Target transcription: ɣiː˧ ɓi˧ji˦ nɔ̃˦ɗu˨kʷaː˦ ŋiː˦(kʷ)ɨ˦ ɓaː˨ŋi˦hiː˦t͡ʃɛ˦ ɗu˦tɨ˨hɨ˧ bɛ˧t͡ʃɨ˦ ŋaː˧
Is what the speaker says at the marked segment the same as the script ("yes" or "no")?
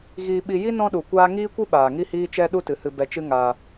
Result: yes